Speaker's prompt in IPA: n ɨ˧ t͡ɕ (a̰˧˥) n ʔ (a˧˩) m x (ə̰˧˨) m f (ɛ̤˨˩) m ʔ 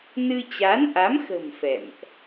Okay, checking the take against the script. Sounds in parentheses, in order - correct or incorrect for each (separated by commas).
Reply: incorrect, incorrect, incorrect, incorrect